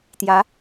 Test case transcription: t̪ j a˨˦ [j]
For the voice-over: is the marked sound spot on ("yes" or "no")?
no